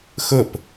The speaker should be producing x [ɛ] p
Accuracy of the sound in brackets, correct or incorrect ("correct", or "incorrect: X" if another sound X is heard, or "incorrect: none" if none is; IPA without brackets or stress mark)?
incorrect: ə